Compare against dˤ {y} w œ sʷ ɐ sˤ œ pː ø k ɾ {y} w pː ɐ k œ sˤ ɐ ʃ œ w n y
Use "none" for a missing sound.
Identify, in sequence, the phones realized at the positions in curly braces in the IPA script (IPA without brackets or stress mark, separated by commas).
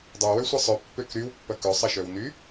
ø, y